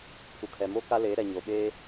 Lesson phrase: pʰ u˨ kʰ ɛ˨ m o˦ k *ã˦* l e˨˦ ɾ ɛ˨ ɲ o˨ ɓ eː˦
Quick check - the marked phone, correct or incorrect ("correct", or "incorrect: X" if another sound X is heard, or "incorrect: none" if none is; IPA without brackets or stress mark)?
incorrect: a˦